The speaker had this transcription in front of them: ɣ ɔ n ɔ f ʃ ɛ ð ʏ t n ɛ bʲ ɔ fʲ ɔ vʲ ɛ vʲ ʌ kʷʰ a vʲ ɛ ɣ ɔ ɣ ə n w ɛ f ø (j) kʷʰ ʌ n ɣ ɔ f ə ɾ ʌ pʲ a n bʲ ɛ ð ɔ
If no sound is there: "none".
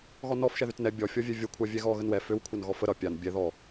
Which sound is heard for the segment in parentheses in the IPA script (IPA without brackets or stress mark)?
w